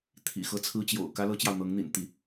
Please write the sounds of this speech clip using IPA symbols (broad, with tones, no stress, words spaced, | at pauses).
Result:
t̪ʰḭ˨˩xɤ˥t͡sʰɹ̩˥t͡ɕjo̰˨˩ʊ̯ kä˥ lɤ˥t͡ɕjɑ˨ʊ̯n̪ɤ˧˥ŋn̪ḭ˨˩n t̪i˥˩